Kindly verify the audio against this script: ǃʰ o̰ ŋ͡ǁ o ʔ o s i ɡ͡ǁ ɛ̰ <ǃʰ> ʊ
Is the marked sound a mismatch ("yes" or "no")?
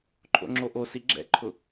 no